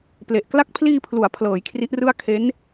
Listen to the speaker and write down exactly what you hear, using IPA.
ple˨˩ʔkla˦˥k̚ pʰliː˧pʰlu˩˦a̯pʰlɤː˩˦j kʰri˦˥ʔrɯ˥˩a̯ kʰe˦˥n

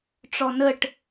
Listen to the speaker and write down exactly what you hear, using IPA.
ʈ͡ʂɔnəʈ

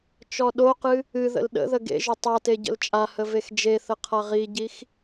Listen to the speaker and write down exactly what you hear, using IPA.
t͡ʃɔɗoqɨ | ɨ ðə̰lɗə̰ðə ɡḛʒʏ tˤate ɟə̰lt͡ʃʼahə vexd͡ʒeθə qʰaʁiɟix

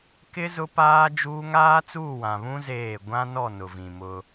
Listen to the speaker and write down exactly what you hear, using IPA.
kɪ˦ zʊ˦paː˦d͡ʒuː˦ ŋaː˦t͡suː˦˨wã˨βũ˦ zeː˦˨ ɡʷã˦nɔ˦˨ nʊ˨vĩ˨mʊ˦

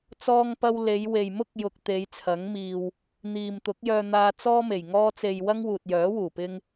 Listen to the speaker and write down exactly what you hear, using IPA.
t͡sɔː˧ŋpɐ˧w le˨˧jwe˨j mʊ˥k̚ jʊ˨k̚ t̪e˨˧jt͡sʰɐ˨˥ŋ miː˨w | n̪iː˨mt̪ʊ˨˥k̚jœː˧n̪aː˧ t͡sɔː˥me˨˩j ŋɔː˧t͡se˨j wɐ˥ŋwuː˨t̚jœː˨˥wuː˨˩ pɪ˧ŋ

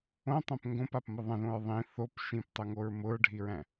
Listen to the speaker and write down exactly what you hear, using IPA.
õtˤõp ŋɡõpapmʊ ðˤə̃ðõɹ ðˤĩ θop ʃĩptˤʊŋoɹ mʊɹɖʱiɹæ̃

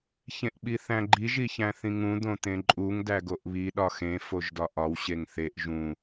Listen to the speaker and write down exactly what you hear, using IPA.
çẽʔɓiθæ̃ɡ͡ǃi ʒiçæ̃θĩŋũ d̪õt̪ẽǃʼuŋ dæɡoʔβi ɗɒxẽ foʒdɒʔɒw ɕeŋθeʔ ʒũ

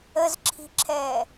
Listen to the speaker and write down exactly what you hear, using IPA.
əzǁʰi̤ǁʰɛː

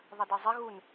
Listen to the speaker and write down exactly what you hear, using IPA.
ðˤɐdɛzˤɪ ɣun

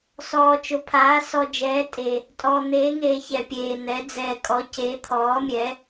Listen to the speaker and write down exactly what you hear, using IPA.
sɔː˨t͡ʃʊ˨pʰaː˨˦ sɔ˨d͡ʒɛː˨˦ tʼe˨ | tʼɔː˨n̪eː˨˦ŋeː˨ çɛ˨pʲeː˨n̪ɛ˨˦ d͡zɛː˨kʼɔ˨˦ ce˨˦ t̪ʰɔː˨˦mʲɛ˨˦

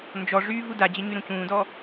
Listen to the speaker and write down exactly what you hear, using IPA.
nd͡ʒɔʐyː vudad͡ʑə ɲyɾũcũːdɔ

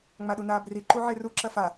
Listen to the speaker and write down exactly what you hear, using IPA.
ŋ͡maɗunaːbri ǃuʕeru ǁɐfa

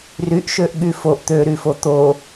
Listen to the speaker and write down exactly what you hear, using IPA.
ryʔʃøʔɠy foʔ t̪øɾyfo t̪o

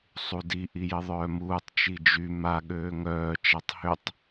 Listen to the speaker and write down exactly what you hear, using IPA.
sˤudi ʔijɪðˤœːmuːtˤ t͡ʃid͡ʒy ma ɠøːŋœː t͡ʃatˤhʏtˤ

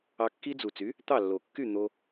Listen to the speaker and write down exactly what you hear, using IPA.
ɑ˧kːi˦˥d͡zu˨˩t͡sy˩˥ | t̪ɑ˥˩lːo˨˩kːy˥˩ n̪o˧

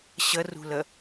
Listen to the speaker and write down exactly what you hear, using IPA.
ɕɐrṳlɐ

